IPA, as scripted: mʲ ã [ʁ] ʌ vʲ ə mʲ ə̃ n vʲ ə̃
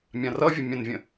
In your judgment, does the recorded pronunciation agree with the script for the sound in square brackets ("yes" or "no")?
no